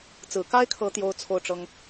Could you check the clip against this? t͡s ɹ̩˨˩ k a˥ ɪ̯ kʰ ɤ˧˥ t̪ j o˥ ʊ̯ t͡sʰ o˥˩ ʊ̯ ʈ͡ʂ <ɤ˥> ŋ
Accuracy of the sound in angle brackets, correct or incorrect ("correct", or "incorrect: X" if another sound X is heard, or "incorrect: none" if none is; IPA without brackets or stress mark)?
correct